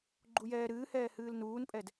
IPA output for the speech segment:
ɡ͡ǃ u j ɛː ɾ ɨː h ɛː h ɨː l n uː n pʼ ɛ d

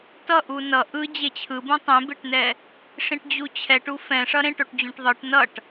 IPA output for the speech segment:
t ʌ ʔ u n ʌ ʔ ɯ d͡ʑ e t͡ɕʰ ɯ b ũ tˤ ẽ b e ʈ n ɛ | ʂ ĩ ʈ d͡ʑ u t͡ɕʰ ɛ ʈ u f ɛ̃ ʂ ʌ ɾ ẽ ʈ o ʈ d͡ʑ ũ ʈ ðˤ ɯ ʈ n ʌ ʈ

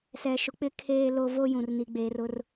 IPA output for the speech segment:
s ɛ˨ ʃ ʊ˨ k͡p ɪ˦ kʰ eː˦ l o˦ v o˦ j ũ˨ r n i˨ ɡ͡b eː˨ r ʊ˦ r

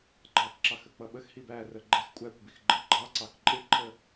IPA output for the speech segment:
ɡ͡ǃ ɑ k ǁ ɑ x ə k͡p ʌ ɓ ə x h i b æ r ə ɡ͡ǃ ɛ x kʷʼ æ kʷ b i x ɡ͡ǃ ə ɡ͡ǃ ɑ ǀ ɑ k ǃʼ ɪ ǃʰ ə

